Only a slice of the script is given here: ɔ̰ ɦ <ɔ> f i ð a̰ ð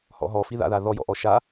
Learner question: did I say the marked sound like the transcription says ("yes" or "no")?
yes